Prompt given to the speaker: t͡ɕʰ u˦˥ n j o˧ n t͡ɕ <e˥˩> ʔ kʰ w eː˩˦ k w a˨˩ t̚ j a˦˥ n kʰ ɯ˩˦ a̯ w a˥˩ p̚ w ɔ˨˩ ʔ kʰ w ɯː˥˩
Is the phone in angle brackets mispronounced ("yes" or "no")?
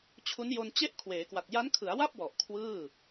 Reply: no